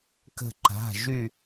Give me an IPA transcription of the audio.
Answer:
kə̤˥˧ǃa̤˧˥˧ ʒy˥˧

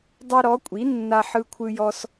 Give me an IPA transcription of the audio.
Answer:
dˤe˦ɾɔ˨˥kʷʼi˨˥ nːa˦ħɯ˦kʷʰɯ˦jɔ˦s

